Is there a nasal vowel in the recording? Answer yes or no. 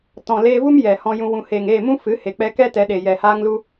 yes